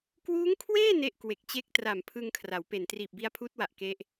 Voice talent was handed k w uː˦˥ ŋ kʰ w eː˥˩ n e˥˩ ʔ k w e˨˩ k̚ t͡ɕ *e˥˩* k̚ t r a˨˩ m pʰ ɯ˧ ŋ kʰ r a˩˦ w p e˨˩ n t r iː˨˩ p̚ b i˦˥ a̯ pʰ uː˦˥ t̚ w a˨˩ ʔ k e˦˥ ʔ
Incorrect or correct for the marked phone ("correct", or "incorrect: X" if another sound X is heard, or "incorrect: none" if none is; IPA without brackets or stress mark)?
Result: correct